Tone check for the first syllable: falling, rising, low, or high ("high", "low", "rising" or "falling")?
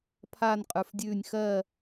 falling